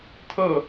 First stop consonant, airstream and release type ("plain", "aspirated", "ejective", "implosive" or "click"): aspirated